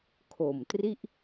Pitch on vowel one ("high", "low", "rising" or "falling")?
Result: low